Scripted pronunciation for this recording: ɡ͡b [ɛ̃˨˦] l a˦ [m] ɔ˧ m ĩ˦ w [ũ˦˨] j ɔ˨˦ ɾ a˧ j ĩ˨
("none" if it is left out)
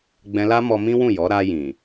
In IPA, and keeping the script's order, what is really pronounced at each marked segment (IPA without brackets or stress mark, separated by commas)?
ɛ̃˧, m, ũ˦˨